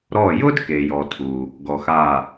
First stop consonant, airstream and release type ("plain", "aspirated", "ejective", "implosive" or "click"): plain